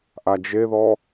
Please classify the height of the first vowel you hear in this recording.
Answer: low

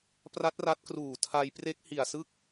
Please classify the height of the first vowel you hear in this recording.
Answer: low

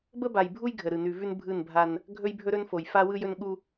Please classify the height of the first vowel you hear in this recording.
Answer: mid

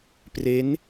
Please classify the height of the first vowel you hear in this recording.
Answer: mid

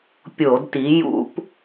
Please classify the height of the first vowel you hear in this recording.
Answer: mid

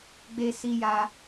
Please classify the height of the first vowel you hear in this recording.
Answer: mid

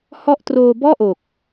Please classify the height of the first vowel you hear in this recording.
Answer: mid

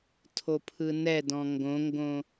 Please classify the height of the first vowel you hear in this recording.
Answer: mid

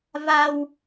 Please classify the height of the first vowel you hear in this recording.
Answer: low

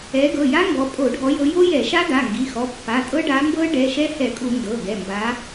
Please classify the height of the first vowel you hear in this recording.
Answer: mid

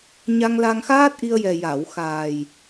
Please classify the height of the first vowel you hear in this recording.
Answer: low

